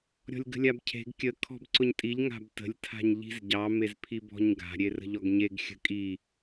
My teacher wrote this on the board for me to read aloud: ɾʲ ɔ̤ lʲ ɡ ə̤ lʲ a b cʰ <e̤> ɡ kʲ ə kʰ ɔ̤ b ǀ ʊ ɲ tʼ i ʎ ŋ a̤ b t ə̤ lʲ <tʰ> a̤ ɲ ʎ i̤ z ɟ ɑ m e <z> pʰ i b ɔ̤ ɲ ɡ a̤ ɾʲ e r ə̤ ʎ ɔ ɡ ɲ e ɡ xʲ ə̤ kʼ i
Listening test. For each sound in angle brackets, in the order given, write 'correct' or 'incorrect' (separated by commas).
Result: correct, correct, correct